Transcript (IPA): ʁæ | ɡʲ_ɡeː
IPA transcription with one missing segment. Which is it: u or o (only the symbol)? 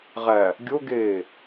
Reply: o